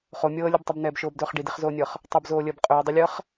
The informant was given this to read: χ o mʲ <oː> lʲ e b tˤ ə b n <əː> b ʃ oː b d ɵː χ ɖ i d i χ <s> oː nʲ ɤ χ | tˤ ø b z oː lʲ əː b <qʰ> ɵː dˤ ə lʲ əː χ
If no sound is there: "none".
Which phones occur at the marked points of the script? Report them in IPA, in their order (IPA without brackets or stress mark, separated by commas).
ɤː, ɛː, z, qʼ